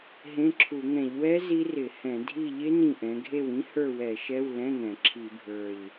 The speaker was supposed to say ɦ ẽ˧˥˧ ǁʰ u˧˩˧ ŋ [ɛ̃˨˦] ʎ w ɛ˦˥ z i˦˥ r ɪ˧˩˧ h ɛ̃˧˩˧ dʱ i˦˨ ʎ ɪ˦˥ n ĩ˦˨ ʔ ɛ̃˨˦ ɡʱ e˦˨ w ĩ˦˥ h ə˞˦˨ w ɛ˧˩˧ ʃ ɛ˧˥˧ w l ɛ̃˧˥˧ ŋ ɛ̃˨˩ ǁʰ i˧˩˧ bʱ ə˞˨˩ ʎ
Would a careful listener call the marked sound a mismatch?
yes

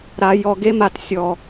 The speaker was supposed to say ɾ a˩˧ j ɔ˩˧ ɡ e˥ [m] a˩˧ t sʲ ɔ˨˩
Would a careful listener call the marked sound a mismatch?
no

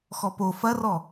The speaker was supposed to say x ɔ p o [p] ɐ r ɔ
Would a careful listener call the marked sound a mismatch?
yes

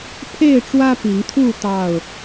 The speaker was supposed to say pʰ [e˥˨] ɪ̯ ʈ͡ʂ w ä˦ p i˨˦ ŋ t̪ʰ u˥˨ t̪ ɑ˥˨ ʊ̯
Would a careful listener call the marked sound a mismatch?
no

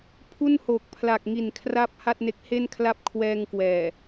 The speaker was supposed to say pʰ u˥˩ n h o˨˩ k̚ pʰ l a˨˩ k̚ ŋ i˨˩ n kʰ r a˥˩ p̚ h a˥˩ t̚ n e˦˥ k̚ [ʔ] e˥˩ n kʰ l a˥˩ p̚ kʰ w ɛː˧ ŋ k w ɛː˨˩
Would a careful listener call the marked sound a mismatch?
yes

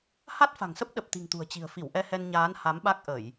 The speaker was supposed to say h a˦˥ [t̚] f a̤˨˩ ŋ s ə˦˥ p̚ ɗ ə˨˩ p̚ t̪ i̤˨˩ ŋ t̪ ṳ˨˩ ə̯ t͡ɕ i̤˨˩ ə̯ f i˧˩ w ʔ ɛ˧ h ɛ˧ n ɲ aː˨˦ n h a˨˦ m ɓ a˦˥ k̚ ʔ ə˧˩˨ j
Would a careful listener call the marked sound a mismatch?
no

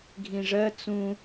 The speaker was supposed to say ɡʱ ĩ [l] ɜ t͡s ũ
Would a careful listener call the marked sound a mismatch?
yes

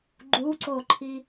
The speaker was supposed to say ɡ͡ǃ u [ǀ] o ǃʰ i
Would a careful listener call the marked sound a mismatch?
no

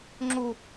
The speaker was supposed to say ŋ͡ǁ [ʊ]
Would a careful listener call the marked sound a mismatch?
yes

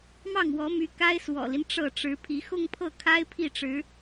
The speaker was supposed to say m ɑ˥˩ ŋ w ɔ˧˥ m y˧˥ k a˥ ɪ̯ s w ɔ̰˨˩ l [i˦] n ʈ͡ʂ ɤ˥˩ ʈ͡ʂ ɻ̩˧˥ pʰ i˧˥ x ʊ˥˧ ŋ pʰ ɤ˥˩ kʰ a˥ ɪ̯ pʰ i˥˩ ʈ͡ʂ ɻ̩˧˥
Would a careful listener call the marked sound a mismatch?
no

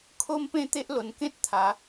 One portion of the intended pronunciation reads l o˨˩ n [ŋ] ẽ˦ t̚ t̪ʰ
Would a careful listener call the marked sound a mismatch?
yes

